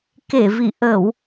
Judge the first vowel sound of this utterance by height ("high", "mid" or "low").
mid